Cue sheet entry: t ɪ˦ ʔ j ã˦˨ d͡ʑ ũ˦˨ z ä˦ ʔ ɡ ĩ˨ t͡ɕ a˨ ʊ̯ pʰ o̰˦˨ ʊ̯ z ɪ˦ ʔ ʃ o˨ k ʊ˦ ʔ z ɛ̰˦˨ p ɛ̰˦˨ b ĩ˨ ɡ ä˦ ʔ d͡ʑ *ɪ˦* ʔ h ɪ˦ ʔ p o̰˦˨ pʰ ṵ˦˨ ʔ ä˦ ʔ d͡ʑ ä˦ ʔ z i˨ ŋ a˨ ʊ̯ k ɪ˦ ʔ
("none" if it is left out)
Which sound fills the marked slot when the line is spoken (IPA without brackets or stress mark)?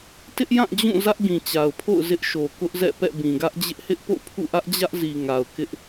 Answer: ɪ˦